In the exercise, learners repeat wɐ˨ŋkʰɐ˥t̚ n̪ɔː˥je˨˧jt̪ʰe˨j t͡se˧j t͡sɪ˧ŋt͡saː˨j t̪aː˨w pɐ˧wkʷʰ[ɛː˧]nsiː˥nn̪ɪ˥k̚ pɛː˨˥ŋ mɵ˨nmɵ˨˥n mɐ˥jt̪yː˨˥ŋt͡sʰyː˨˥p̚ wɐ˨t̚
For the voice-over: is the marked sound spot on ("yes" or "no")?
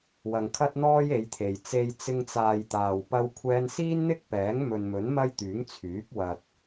yes